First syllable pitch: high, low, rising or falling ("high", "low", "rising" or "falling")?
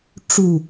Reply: falling